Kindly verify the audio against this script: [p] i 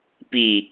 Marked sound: correct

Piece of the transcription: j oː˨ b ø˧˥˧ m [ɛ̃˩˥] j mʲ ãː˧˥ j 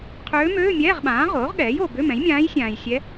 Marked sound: correct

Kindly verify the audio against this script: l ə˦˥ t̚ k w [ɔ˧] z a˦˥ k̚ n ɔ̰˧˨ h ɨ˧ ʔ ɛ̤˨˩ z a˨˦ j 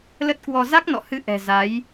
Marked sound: correct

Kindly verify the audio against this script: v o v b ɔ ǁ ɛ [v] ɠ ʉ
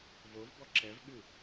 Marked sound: correct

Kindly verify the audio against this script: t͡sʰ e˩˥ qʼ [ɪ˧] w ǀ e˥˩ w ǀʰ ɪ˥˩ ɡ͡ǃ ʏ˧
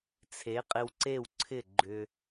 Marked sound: correct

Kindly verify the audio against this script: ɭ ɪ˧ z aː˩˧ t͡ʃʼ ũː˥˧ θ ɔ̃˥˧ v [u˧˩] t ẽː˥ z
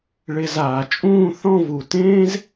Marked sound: correct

